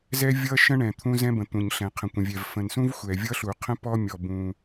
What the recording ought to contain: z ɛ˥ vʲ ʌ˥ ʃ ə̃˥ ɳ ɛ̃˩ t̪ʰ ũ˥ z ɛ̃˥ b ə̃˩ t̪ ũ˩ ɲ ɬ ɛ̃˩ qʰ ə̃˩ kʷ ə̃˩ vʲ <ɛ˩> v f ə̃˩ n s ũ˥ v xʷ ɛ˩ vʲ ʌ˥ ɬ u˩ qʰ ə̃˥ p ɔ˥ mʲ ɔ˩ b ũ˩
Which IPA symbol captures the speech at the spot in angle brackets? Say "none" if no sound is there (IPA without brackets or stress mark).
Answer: ɛ˩